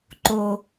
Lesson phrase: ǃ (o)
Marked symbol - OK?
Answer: yes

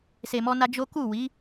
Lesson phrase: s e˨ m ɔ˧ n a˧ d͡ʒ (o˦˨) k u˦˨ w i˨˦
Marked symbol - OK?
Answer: no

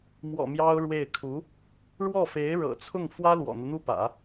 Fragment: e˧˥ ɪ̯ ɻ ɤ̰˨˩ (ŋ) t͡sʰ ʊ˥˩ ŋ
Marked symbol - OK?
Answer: no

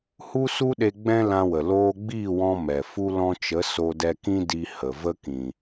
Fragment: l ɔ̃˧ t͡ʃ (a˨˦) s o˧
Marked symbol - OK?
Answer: no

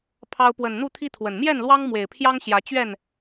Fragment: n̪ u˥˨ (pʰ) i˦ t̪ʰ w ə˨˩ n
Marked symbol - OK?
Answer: no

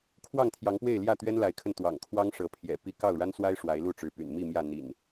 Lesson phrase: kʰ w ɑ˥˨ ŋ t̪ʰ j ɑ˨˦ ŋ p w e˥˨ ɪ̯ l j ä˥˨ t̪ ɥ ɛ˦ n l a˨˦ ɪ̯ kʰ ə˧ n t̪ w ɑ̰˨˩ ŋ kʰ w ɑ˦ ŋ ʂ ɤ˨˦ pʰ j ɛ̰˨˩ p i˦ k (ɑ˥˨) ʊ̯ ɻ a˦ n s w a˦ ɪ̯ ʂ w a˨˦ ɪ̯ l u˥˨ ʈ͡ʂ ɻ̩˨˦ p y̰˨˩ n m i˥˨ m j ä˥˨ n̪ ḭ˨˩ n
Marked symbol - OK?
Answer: yes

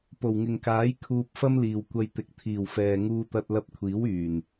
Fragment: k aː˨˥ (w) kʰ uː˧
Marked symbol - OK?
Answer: no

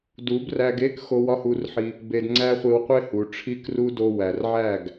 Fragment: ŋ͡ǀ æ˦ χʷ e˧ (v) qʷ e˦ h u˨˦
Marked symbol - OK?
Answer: no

